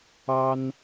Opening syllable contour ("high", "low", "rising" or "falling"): high